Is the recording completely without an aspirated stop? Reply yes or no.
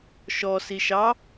yes